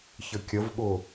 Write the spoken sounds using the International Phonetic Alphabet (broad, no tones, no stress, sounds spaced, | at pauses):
ç ə kʲ ə v ɠ ʊ